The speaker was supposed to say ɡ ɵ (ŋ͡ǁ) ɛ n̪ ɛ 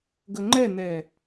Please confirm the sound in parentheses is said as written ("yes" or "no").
no